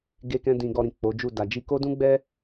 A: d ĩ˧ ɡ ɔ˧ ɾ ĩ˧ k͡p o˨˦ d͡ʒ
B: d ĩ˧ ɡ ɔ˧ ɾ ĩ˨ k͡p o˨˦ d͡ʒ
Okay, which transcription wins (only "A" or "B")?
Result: B